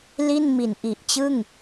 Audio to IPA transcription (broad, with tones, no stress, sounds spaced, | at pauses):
l i˥˩ n m i˨˩ n ʔ i˨˩ ʔ t͡ɕ ɯ˥˩ ŋ